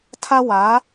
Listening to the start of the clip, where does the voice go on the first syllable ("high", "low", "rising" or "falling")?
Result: high